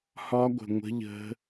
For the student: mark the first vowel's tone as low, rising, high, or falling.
high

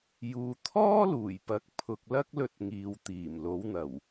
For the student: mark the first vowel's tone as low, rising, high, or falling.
low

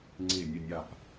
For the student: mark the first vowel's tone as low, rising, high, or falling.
falling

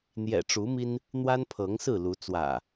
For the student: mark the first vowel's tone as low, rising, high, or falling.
low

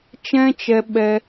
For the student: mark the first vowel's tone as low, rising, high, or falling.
high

